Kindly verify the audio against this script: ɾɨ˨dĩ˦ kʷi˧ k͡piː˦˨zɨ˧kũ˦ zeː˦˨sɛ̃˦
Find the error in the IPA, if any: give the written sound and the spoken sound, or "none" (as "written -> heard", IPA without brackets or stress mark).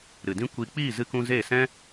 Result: ũ˦ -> ũ˧